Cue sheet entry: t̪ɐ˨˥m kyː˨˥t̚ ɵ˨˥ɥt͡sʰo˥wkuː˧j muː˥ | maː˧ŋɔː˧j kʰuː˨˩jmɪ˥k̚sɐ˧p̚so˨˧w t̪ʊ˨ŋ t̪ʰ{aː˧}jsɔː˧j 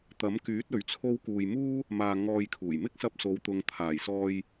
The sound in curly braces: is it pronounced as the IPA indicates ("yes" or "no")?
no